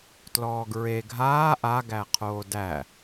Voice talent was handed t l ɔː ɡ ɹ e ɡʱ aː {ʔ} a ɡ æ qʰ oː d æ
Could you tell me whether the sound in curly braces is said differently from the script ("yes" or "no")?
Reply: no